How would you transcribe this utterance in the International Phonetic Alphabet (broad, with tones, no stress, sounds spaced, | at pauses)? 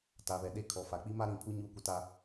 t a˨ β ɛ˨ ɗ e˦ kʰ ɔ˨ f a˨ k͡p i˦ m a˦ ɾ ĩ˨ pʰ u˦ ɲ uː˦ kʷ ɪ˦ t a˦